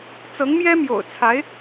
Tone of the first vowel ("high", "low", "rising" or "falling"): rising